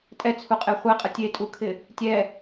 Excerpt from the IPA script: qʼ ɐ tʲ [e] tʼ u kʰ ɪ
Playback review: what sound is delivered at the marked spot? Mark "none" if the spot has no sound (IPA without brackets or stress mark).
e